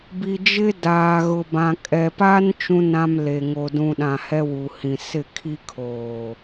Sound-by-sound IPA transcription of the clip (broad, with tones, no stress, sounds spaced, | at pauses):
b i˨ d͡ʒ ɪ˦ d aː˨ ɣ ʊ˨ b ã˨ kʼ ɛ˨ p a˦ n t͡ʃ ũ˦ n ã˦ m l e˨ ŋ o˨ d ũ˨ ɗ ã˨ h ɛ˦ w u˨ h ĩ˨ s ɪ˦˨ kʰ i˦ kʰ oː˨